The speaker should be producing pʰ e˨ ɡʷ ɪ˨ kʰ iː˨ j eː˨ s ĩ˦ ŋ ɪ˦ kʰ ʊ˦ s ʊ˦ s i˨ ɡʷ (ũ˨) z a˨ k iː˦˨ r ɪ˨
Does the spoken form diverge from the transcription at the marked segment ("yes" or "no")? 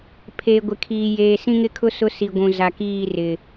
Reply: no